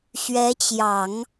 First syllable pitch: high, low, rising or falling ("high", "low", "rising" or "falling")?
rising